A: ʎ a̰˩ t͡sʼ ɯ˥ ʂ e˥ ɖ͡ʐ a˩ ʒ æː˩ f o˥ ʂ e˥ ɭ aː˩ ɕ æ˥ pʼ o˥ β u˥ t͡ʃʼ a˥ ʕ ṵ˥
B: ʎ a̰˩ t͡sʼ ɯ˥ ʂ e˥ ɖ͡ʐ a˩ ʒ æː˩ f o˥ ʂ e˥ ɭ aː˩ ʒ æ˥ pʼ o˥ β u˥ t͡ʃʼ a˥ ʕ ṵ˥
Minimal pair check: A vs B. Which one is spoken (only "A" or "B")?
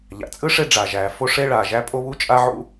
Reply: B